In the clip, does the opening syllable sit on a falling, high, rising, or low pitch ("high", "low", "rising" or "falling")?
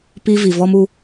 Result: high